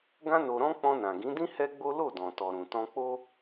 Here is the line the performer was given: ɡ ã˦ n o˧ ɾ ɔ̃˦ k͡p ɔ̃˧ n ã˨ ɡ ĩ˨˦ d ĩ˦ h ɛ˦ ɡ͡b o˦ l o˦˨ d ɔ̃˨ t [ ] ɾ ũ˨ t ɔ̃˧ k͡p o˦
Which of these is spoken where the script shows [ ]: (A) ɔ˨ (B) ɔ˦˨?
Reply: A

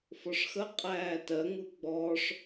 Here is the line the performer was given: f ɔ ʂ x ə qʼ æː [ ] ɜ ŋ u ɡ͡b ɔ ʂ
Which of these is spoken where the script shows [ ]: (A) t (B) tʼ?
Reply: A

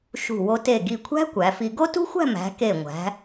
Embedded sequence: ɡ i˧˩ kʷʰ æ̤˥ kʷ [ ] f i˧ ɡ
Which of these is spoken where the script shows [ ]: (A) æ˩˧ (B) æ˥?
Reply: A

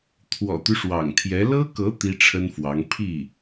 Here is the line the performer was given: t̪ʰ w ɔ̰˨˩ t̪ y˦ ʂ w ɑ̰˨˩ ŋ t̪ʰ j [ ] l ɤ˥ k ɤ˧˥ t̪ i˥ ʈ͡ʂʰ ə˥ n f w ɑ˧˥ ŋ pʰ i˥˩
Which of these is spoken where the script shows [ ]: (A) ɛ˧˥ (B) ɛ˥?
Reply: A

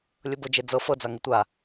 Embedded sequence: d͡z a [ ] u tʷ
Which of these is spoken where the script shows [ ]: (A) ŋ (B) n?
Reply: A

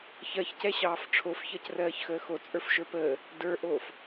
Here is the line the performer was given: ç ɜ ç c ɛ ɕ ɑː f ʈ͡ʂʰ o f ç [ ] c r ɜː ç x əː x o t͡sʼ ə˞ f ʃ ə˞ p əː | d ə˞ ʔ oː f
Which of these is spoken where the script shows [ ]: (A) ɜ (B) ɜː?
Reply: A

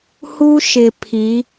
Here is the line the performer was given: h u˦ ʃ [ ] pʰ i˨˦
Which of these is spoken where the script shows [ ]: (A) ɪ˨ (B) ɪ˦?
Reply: A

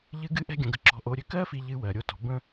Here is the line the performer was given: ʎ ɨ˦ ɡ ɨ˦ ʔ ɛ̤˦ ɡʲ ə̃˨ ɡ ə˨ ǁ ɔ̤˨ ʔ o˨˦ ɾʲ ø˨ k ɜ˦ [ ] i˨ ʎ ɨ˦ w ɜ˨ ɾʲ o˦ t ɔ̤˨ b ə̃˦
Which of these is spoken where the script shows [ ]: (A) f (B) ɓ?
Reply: A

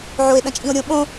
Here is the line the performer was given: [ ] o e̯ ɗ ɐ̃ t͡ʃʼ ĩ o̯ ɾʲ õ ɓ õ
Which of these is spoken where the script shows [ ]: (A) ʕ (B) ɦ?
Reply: A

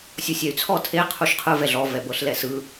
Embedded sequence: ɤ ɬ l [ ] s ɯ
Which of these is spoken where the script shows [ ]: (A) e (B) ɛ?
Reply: B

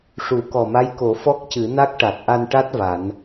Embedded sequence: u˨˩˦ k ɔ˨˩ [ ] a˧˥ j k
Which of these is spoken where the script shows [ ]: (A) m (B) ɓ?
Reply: A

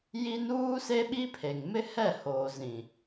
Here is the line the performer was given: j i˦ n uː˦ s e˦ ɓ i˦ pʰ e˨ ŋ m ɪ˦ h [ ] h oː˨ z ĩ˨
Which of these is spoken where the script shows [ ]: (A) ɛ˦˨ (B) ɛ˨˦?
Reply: A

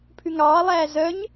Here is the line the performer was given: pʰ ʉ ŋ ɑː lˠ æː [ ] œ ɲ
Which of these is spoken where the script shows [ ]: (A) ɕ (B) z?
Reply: B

